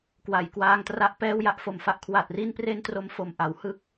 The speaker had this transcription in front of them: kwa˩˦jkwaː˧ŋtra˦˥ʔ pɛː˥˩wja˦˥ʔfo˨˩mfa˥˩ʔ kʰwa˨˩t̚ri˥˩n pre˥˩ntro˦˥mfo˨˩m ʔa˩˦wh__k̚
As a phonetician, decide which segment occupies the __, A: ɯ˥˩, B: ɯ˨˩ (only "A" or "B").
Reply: A